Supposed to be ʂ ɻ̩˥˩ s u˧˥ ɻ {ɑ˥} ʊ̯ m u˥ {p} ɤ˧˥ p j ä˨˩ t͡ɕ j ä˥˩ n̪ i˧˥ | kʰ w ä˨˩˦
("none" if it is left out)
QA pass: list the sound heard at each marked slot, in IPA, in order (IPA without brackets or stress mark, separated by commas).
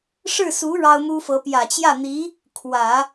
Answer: ɑ˥, f